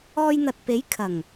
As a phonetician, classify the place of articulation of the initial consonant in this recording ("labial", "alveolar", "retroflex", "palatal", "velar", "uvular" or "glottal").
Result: palatal